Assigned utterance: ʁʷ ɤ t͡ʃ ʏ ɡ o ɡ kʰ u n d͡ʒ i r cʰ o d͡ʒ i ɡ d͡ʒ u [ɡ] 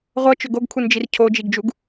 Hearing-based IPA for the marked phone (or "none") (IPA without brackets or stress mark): ɡ